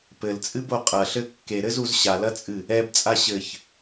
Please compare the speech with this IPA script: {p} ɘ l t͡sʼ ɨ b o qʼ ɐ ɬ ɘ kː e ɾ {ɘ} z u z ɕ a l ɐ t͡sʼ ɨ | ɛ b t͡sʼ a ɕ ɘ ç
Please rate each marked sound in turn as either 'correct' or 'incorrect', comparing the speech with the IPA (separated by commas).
correct, correct